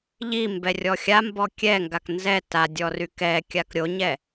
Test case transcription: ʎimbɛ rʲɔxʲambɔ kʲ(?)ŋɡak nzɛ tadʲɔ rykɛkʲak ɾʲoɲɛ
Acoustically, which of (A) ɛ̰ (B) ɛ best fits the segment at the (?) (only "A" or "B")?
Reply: B